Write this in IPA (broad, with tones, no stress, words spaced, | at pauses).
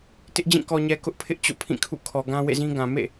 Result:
tɪ˦ʔd͡ʑĩ˦˨ kɔ˨ɲɛ˨ kʊ˦ʔpʰɪ˦ʔ t͡ɕo̰˦˨pʰĩ˦˨kʰṵ˦˨ kʰɔ˨ɡã˦ wḛ˦˨zĩ˦ɡã˨ mḛ˦˨